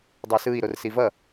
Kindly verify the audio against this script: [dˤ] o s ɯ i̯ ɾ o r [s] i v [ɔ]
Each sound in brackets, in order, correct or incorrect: correct, correct, incorrect

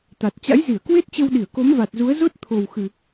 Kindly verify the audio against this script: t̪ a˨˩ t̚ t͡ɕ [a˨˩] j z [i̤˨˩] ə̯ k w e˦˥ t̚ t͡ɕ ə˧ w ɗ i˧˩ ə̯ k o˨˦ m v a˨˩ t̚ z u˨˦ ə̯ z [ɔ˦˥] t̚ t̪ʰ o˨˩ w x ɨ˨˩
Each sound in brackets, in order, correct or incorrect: incorrect, incorrect, incorrect

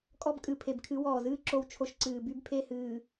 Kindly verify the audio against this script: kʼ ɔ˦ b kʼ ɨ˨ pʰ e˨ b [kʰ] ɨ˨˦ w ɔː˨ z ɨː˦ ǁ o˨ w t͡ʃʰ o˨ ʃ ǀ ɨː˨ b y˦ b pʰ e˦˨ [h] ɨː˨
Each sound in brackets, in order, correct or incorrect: correct, correct

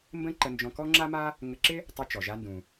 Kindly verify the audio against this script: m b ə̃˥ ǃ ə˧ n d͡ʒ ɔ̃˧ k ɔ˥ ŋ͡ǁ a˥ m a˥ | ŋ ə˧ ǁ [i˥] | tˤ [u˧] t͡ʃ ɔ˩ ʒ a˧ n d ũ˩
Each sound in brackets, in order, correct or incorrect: incorrect, correct

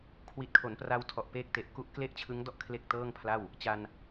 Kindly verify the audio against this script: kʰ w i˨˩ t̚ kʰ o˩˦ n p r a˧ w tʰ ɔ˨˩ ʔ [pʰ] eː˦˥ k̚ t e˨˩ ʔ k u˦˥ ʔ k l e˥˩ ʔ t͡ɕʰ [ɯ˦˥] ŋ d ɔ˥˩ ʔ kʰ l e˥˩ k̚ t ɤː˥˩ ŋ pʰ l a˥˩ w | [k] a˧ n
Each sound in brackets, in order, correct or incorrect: incorrect, correct, incorrect

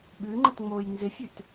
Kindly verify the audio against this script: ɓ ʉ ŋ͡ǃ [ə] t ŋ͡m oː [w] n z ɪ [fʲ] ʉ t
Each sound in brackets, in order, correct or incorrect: correct, incorrect, correct

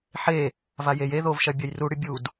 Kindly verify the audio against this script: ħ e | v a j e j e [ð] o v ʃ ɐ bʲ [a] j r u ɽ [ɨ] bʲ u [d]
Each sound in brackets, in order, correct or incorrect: correct, incorrect, correct, correct

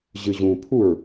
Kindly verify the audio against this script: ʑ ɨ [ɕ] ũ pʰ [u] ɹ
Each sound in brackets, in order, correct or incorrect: incorrect, correct

